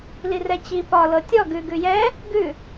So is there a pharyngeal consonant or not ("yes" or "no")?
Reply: no